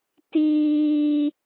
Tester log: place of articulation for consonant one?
alveolar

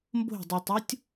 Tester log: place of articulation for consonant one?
labial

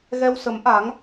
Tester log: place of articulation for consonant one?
velar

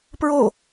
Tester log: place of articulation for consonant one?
labial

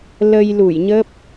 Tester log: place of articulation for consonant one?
alveolar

